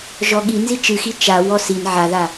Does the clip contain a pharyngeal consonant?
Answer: yes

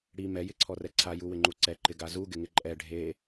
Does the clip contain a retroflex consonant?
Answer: yes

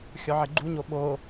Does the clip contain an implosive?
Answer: yes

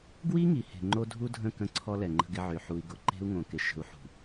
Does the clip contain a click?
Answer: yes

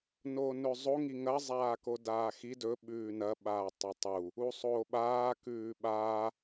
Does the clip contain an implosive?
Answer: yes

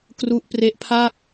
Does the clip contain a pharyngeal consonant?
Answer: no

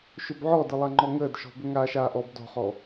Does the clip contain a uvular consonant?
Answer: yes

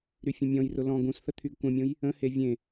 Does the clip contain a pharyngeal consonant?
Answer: no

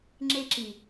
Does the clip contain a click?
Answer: yes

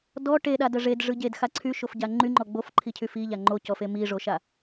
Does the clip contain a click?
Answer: yes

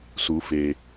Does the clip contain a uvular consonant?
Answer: no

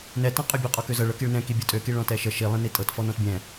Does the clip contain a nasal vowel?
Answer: yes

